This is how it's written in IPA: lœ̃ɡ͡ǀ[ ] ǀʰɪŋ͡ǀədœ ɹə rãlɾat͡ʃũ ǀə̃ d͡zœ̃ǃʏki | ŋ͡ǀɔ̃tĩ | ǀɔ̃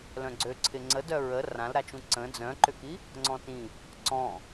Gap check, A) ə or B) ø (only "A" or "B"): B